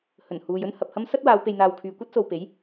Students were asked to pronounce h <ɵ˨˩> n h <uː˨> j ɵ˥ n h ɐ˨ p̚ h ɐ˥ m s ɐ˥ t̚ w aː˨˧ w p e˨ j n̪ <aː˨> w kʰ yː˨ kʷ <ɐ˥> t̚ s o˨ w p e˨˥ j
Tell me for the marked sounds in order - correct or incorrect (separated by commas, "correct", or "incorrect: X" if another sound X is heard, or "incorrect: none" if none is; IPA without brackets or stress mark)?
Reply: correct, correct, correct, correct